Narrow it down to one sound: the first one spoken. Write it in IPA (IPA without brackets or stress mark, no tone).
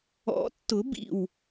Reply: ɔ̰